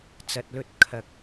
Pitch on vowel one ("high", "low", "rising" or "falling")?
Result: low